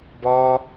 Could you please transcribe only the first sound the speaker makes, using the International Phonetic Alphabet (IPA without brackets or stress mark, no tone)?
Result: b